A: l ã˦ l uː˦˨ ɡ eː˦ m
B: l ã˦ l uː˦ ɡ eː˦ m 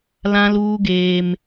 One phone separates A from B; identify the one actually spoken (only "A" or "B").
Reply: B